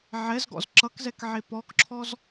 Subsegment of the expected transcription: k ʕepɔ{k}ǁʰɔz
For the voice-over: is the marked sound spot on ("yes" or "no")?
yes